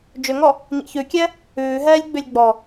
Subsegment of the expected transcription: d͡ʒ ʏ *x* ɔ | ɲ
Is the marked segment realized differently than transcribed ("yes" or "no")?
yes